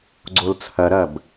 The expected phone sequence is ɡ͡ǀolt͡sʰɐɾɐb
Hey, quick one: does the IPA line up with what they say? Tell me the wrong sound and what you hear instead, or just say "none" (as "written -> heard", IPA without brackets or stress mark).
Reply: none